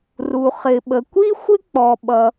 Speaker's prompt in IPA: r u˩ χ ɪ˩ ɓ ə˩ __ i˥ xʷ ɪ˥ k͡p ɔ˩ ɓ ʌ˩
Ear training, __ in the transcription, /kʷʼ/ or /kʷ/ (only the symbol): kʷ